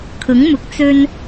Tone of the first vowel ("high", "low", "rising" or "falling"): rising